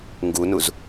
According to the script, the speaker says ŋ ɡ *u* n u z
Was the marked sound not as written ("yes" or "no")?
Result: no